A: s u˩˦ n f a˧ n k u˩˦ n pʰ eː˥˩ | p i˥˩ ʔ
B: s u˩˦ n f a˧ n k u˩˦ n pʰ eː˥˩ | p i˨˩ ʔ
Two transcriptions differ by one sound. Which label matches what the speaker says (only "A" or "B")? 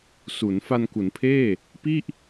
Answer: A